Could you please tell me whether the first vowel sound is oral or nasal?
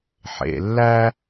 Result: oral